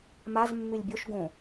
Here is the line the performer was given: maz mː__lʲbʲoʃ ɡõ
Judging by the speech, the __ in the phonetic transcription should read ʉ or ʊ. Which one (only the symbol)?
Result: ʉ